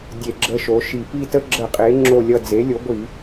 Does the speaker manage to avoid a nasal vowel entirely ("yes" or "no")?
yes